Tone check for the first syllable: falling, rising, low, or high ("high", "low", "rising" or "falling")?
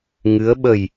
rising